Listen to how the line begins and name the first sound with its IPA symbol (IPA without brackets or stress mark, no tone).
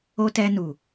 o